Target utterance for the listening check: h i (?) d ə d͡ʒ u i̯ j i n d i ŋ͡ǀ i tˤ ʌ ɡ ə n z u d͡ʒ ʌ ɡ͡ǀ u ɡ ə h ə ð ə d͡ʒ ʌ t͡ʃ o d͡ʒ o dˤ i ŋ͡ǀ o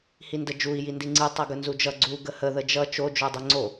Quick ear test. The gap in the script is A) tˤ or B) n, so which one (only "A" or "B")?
B